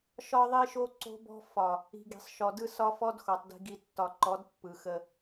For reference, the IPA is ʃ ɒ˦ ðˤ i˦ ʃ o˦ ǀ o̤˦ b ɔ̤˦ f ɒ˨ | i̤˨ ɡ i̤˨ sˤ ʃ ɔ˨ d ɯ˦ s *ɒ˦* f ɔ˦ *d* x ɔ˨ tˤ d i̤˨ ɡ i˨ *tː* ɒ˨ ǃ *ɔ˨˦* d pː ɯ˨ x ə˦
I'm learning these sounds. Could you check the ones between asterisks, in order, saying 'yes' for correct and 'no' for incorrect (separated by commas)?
yes, yes, yes, yes